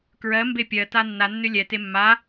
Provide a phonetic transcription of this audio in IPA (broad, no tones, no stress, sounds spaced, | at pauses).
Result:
k ɹ ɜ m b e pʲ ɜ t a nː a nː ʏ lʲ ɛ t e mː a